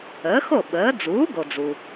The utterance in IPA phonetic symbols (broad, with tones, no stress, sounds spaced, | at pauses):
əː˩˥ x o˥˩ ɓ əː˩˥ d͡z uː˩˥ ɡ o˩ d͡z u˩